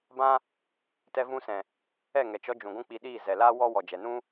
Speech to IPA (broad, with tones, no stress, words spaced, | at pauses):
bã˦ | tɛ˧vũ˧sɛ̃˨ | ɛ˦˨ŋɛ˨t͡ʃɔ˧d͡ʒũ˨ ɡʷũ˦k͡pi˧ɗiː˦˨ zɛ˨laː˦ wɔ˦ wɔ˨d͡ʒɛ˨nũ˦